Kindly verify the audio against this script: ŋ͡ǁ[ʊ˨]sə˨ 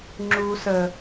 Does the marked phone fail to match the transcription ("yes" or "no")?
yes